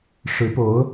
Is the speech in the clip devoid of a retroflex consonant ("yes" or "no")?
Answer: no